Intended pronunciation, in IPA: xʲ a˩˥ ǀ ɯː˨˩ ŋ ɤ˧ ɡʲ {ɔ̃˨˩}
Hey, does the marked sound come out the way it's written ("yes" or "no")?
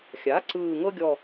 no